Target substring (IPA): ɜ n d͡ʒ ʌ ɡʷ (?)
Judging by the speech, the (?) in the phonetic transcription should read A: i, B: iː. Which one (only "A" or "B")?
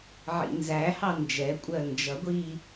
B